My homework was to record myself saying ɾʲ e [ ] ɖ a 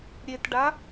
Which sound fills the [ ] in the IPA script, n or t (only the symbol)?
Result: t